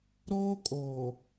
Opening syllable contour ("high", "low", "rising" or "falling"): high